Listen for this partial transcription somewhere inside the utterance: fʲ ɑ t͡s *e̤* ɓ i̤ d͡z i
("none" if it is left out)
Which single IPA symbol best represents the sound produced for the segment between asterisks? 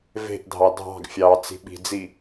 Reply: i̤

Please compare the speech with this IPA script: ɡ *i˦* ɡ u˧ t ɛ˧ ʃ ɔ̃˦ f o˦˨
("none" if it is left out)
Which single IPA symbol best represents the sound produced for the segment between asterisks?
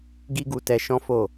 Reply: i˦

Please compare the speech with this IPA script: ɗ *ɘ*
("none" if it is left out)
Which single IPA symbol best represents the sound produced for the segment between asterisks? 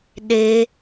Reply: e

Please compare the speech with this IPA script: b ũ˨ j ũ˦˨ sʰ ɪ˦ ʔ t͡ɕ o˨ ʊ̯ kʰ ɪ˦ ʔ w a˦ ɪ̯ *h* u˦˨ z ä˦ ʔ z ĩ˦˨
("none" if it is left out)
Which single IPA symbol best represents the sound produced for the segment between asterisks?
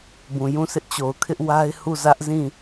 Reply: h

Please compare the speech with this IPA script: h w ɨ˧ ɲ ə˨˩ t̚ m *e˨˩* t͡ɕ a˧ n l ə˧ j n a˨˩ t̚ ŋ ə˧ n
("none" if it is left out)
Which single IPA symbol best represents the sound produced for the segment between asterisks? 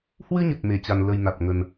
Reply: e˧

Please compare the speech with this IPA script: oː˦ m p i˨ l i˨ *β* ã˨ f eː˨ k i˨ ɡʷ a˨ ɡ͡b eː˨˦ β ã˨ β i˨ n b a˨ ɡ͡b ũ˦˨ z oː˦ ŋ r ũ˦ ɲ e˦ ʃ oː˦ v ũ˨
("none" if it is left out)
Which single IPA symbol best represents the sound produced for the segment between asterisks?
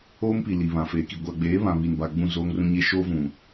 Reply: β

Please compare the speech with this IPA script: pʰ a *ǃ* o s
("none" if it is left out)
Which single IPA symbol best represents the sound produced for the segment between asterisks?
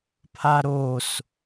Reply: ɾ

